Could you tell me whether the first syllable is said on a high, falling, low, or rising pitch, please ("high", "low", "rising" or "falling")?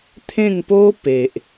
falling